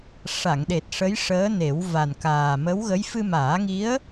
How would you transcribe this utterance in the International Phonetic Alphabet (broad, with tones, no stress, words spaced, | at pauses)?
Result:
ʂa˨˩˨ŋɗe˨˩t̚ ʂə˧˥jʂəː˧˥ne˨˩˦w va˨˩nkaː˨˩ mə˧˥wɣə˧˥j fɨ˧maː˨˩˦ŋi˧˥ə̯